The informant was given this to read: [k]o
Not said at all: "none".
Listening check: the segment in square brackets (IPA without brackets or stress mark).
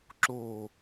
ǁ